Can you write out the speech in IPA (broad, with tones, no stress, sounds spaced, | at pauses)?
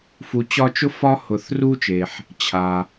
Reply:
f u˨ t͡ɕ ɒ˦ t͡ʃ ʊ˥ f ɒ˦ h ʊ˨ θ r u˦ t͡ʃ e˩ ħ | t͡ɕʰ a˩